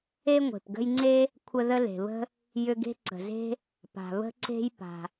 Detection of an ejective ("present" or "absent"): absent